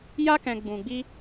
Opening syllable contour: high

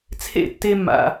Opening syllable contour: falling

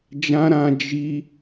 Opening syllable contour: high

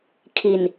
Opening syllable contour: low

